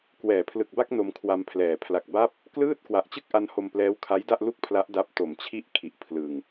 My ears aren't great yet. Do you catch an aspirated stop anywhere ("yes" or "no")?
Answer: yes